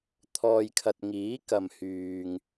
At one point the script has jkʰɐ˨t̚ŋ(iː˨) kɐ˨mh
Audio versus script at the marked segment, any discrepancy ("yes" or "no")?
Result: yes